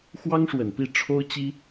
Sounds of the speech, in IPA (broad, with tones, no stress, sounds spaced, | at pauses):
x w ɑ˥ ŋ ʂ w ə˨˩ n p i˥˩ ʈ͡ʂʰ o˥ ʊ̯ t͡ɕ i˥